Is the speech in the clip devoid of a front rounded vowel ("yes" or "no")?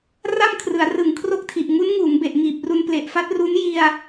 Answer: yes